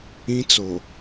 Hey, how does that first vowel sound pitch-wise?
high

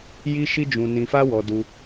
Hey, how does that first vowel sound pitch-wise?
high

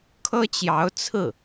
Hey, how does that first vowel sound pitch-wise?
high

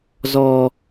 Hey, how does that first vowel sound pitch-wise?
high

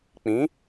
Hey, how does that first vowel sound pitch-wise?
rising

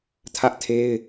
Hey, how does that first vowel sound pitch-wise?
high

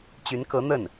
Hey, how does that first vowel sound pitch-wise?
rising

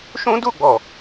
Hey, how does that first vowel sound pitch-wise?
high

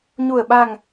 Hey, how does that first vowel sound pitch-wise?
low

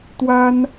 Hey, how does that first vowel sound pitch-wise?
high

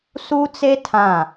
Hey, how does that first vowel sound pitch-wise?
high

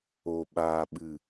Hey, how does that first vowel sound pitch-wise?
low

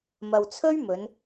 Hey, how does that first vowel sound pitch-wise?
low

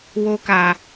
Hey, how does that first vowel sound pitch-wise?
high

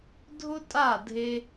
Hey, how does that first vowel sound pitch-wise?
high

